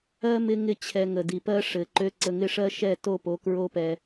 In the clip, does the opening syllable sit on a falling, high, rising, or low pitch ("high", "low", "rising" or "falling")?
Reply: high